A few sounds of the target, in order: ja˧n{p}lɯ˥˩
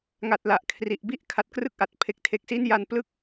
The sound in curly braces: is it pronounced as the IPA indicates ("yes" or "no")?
yes